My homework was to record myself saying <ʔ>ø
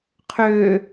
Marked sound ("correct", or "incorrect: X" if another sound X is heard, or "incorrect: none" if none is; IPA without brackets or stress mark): incorrect: qʰ